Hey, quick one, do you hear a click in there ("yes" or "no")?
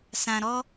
no